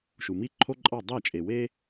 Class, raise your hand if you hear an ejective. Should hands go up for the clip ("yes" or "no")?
yes